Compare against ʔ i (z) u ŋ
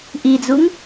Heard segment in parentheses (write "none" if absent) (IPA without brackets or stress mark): d͡z